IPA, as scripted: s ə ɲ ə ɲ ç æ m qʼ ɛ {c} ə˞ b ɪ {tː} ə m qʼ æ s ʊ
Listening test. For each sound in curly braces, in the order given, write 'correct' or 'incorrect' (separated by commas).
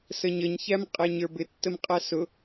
incorrect, correct